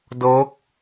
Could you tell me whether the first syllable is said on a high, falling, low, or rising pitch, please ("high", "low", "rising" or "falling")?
rising